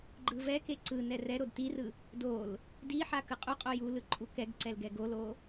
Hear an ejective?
yes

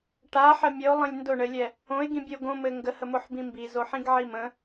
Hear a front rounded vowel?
no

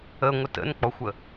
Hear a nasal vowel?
no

